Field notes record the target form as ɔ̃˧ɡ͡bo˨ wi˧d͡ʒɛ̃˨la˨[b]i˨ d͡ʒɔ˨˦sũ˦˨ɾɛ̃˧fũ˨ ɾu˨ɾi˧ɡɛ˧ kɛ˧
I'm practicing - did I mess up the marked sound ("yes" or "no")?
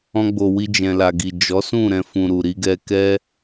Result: yes